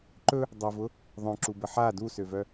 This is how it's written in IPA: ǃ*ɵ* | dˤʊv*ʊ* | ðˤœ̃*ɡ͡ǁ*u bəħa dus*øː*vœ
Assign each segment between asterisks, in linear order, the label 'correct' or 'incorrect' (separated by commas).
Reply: correct, correct, incorrect, incorrect